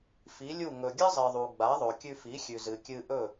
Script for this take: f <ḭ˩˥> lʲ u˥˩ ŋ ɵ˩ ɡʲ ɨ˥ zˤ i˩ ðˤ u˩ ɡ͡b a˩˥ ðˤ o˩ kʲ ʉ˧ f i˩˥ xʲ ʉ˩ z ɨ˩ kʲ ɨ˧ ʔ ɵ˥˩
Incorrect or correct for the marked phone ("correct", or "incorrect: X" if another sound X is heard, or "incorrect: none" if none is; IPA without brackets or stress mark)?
incorrect: i˩˥